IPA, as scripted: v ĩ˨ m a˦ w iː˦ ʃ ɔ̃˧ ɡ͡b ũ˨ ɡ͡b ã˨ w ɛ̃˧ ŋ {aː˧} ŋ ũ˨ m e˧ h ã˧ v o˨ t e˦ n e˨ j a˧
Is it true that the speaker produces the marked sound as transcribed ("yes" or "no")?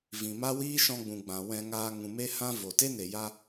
yes